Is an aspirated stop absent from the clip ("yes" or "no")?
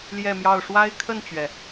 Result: no